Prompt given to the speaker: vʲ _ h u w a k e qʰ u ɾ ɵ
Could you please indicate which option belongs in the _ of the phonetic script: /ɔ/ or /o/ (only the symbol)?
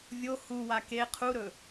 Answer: o